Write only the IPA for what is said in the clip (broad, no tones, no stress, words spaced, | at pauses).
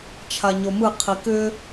t͡ʃʰaɲomɯ qʰikʏ